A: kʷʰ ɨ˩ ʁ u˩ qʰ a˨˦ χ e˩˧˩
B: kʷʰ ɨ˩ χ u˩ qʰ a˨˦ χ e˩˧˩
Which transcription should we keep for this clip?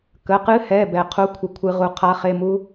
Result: A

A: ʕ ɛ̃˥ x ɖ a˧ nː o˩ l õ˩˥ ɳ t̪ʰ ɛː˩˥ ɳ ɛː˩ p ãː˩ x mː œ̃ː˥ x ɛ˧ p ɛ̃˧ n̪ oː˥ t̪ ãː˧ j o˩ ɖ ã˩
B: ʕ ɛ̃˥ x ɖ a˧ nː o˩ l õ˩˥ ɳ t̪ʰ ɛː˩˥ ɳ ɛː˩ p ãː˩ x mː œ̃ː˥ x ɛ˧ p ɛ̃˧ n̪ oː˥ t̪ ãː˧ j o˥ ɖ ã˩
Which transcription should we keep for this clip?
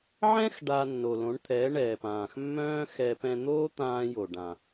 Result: A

